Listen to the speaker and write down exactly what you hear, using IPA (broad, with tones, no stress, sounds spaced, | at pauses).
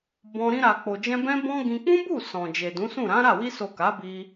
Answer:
b ɔ̃˧ ɾ ĩ˧ ɾ a˨ k͡p o˨ d͡ʒ ɛ̃˧ b ɛ̃˦ b ɔ̃˦ ɡ ĩ˧ k͡p ũ˦ b u˦˨ s ɔ̃˨ d͡ʒ e˨ d ũ˨˦ s ũ˦˨ ɾ ã˨˦ ɾ a˦˨ w i˧ s o˨ k a˨˦ b i˧